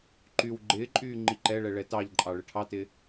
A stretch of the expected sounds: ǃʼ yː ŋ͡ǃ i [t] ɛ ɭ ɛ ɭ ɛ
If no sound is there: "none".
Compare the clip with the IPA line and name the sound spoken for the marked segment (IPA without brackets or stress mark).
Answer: ǃ